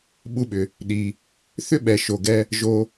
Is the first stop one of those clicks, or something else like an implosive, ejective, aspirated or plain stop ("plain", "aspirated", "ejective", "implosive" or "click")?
implosive